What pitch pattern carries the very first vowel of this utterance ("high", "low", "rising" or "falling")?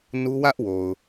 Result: high